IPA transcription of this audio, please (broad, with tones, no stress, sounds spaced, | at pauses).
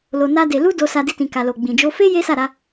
l o˧ n a˦ d e˧ l u˦ d o˧ s a˧ d i˧ t ĩ˨ k a˨ l o˨ ɡ͡b ĩ˨ d͡ʒ o˧ f e˦ j e˦ s a˦˨ ɾ a˧